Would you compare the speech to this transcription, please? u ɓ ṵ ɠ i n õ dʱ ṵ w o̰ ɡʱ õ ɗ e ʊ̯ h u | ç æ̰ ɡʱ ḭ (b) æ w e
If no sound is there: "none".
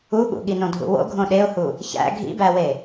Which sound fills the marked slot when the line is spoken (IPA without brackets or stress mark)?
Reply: b